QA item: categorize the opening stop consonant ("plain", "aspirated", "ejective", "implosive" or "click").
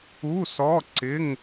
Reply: click